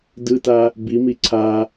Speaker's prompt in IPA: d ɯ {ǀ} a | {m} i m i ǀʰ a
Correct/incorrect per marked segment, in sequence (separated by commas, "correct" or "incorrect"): incorrect, incorrect